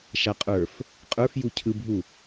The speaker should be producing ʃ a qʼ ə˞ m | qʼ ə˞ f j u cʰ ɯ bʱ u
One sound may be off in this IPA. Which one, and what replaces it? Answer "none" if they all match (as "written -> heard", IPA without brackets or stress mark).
m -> f